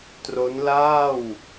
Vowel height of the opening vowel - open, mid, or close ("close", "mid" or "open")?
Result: mid